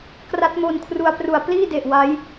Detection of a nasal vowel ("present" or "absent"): absent